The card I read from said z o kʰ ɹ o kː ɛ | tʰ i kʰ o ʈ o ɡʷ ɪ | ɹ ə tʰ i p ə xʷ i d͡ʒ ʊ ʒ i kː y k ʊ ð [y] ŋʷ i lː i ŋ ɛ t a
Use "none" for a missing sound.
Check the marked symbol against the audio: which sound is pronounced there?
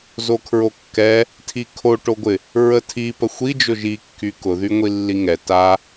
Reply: y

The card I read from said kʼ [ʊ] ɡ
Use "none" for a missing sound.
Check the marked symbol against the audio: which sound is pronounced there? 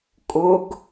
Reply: ʊ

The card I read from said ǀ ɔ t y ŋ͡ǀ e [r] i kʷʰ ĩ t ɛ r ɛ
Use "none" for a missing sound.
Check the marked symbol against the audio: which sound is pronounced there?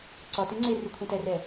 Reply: r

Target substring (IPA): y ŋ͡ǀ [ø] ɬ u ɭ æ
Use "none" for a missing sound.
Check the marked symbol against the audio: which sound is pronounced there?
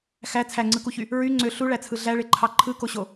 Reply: ø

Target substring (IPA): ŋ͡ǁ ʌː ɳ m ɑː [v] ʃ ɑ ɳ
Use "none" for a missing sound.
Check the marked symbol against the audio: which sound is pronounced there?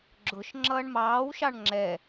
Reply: w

